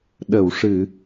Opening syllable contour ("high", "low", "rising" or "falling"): low